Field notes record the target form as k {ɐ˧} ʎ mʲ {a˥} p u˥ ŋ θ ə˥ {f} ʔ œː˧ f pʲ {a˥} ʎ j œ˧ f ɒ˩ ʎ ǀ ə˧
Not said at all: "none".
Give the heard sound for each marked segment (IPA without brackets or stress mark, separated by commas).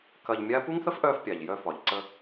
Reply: ɐ˧, a˥, f, a˩